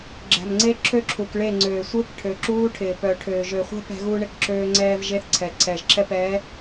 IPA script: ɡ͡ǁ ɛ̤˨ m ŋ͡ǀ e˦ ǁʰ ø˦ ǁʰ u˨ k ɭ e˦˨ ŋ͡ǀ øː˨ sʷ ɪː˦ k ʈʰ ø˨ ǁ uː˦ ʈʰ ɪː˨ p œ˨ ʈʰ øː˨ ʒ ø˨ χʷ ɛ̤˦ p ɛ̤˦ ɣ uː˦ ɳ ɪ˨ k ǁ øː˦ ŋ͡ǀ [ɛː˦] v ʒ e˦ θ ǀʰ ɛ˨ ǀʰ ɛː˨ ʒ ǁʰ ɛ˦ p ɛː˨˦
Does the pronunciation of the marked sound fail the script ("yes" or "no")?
no